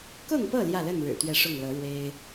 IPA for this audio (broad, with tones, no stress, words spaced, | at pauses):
kʊ˥˨ŋpɤ˥˨ ljä˥˨lə˥˨nɻɻ̩˨˩ t̪ɥɛ˥˨ʂʊ˥˨ŋlɤ˨˦ ɻwe˦ɪ̯